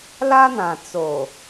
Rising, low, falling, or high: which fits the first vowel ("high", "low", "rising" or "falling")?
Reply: high